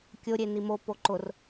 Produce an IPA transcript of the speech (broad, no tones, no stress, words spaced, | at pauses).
kʲoɾʲe nimo poǃʊr